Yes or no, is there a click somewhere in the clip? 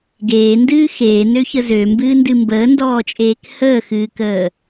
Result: no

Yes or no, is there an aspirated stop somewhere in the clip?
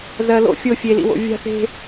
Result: no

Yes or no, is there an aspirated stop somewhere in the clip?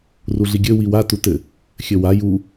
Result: no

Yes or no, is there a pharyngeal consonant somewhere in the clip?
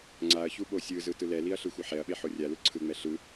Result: yes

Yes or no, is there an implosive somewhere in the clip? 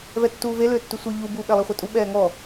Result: yes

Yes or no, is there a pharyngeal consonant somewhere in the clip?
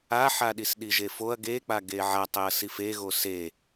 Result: yes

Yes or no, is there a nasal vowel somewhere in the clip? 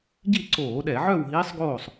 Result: no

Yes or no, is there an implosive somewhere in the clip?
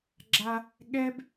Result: yes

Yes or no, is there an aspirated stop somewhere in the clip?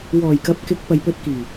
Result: no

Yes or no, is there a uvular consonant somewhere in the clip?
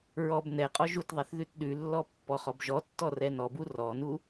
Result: yes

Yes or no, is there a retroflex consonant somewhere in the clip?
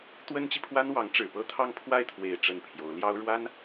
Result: yes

